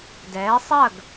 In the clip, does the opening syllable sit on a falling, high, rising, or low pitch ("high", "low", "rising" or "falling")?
rising